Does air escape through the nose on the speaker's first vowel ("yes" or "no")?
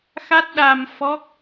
no